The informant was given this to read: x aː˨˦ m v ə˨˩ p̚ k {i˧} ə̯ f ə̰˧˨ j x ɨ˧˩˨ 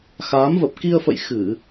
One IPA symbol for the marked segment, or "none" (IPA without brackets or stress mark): i˧